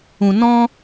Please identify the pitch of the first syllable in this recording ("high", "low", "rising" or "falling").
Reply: low